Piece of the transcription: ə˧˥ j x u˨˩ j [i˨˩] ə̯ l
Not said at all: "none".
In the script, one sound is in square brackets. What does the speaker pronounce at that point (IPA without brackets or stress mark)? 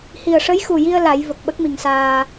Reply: i˧